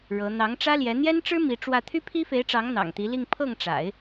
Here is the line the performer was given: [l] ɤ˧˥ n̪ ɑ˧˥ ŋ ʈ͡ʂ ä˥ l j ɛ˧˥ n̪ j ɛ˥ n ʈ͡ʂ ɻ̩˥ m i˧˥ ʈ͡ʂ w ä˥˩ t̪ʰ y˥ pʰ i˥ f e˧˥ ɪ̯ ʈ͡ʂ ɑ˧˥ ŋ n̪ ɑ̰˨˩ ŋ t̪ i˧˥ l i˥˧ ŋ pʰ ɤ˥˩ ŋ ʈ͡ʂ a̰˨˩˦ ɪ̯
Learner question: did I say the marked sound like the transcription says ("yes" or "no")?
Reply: no